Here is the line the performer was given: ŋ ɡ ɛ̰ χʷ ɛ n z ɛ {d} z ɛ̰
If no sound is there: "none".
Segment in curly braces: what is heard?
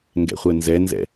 n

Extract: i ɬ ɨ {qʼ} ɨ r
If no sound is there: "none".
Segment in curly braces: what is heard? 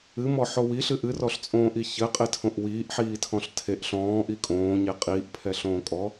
ʔ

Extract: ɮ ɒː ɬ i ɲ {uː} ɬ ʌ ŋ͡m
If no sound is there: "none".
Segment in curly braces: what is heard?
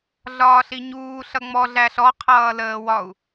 uː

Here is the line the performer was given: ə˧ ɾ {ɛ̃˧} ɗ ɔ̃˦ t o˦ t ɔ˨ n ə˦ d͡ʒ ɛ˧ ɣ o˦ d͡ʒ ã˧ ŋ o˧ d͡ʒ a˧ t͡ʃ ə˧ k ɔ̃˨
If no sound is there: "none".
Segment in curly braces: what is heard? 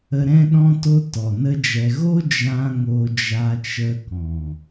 ɛ̃˦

